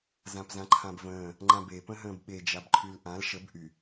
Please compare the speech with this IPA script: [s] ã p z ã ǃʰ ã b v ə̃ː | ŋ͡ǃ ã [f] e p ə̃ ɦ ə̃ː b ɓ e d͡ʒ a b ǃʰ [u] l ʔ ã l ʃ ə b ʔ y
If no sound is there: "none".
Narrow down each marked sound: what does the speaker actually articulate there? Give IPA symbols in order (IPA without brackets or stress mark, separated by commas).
z, b, y